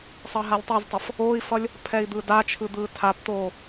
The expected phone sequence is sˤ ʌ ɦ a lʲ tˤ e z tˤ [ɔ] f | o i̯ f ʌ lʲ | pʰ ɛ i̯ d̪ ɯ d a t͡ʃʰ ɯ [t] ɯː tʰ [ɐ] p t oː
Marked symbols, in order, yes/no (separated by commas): no, no, no